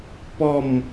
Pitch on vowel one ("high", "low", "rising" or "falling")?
falling